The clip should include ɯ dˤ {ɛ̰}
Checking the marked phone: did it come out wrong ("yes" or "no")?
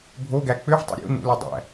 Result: yes